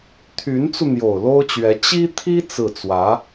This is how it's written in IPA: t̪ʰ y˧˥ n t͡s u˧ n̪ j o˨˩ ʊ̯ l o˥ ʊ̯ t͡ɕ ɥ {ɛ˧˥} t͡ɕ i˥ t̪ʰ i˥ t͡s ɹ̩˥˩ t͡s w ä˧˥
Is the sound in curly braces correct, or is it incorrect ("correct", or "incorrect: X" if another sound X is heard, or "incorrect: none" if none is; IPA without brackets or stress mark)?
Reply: correct